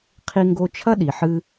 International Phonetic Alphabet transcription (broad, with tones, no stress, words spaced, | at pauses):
qʰi˦ŋɡo˦t͡ʃʰɐ˥ɗi˨ ħɨ˦